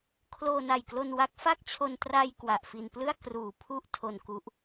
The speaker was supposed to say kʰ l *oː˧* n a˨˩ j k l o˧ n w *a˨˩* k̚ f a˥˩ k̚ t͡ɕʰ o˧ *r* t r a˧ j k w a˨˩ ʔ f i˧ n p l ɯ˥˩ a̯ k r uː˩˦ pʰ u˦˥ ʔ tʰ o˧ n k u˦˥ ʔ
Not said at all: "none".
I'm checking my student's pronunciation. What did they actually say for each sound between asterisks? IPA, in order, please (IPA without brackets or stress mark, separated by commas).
oː˧, a˦˥, n